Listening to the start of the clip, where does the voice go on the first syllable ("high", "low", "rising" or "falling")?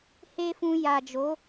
high